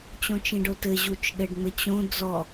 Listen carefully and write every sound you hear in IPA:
t͡ɕ õ t͡ʃ ĩ ɖ o t ɘ ʑ u t͡ʃ ɗ ɘ ɖ ŋ͡m ɘ t͡ɕ õ d͡z ɔ

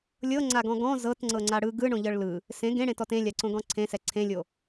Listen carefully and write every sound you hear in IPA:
lʲ ɤ ŋ͡ǀ a ɡ ɔ̃ ɡ ɔ̃ z ɤ t ŋ͡ǀ ɤ ŋ͡ǀ a ɽ ɯ ɡ ɯ ɳ õ ʎ ɤ ɭ l ɯ | s ẽ ɡ ẽ ɽ ẽ t ɔ t ẽ lʲ a ǀ õ ɡ ɔ̃ ǀʰ ẽ s ɛ ǀʰ ẽ lʲ o

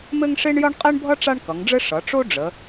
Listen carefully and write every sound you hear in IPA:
m ɘ˥ ŋ ʂ e˥ ɳ j ʌ˥ ɳ qʼ e˥ ɳ bʱ ʌ˥ ʈ͡ʂ a˥ ɳ k ʌ˩˧ ŋ ɖ͡ʐ ɘ˥ ʂ ʌ˩˧ ʈ͡ʂ o˥ ɖ͡ʐ ə˩˧

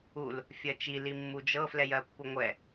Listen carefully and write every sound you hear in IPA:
u l | fʲ ɜ t͡ʃ i l i mː u d͡ʒ ɤ f l ɛ j ɜ pː u ŋʷ ɛ

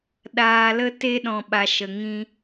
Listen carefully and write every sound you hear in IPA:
ɗ aː˨ l ə˧ t e˧ ɗ ɔ̃˨ ɓ a˨ ʃ ə˨ ŋ ĩ˧

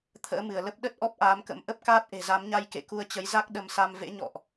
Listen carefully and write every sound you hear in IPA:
t̪ʰ ə̰ː˧˥ m ɨ˧˩ ə̯ l ə˦˥ p̚ ɗ ə˦˥ t̚ ʔ ɔ˦˥ p̚ ʔ aː˨˦ m k ə̰˧˥ m ʔ ə˦˥ p̚ k aː˦˥ t̚ ʔ e̤˨˩ z a˨˦ m ɲ a˧ j k ḛ˧˨ k u˧ ə̯ t͡ɕ ə˨˦ j z a˦˥ k̚ ɗ ə˧ m s a˧ m v ḛ˧˥ ɲ ɔ̰˧˨ ʔ

